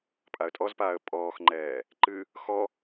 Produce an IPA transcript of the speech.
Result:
pʼ a ə̯ tʼ ɔ z p aː ə̯ pʼ ɔː x ŋ͡ǃ ɛː | ǃ ɨ | x ɔ

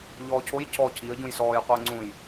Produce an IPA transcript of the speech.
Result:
ʎ ɔː cʰ o j cʰ ɔ cʰ i ə̯ ɟ ũ j s ɔː j qʷ əː ŋ͡ǀ ũ j

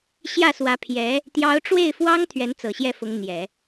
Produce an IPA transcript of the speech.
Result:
ɕ j ä˥˩ s w ä˧˥ pʰ j ɛ˧˥ | t̪ j ɑ˧˥ ʊ̯ ʈ͡ʂ w e˥˩ ɪ̯ f w ɑ˥ ŋ t̪ʰ ɥ ɛ˧˥ n t͡s ɤ˨˩ ɕ j ɛ˥˩ f ʊ˧˥ ŋ n̪ j ɛ˨˩˦

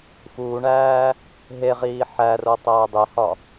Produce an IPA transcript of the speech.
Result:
f uː ɳ æː | ɦ e ʁ iː ħ æ r o tˤ æː dˤ e h ɒ

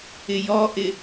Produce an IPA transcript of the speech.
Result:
ɪ j ɔ ʔ ɪ

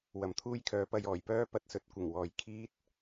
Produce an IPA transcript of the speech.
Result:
w ɐ˨ m t̪ʰ uː˥ j kʰ œː˨˧ p ɐ˧ j ɔː˨˩ j p œː˥ p ɐ˨ t̚ s ɵ˧ t̚ kʷ ɪ˨˩ ŋ w ɔː˨ j kʰ iː˥ t̚

